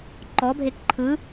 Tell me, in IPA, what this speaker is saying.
ǃ ɔ bʱ e k ǃʰ ɯ

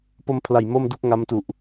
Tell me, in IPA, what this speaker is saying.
p o˧ m pʰ l a˨˩ j m o˥˩ m d u˥˩ k̚ ŋ a˦˥ m t u˨˩ ʔ

